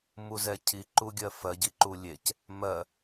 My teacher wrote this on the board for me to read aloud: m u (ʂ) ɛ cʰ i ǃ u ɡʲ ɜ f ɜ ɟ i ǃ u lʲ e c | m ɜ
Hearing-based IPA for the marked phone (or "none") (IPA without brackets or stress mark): z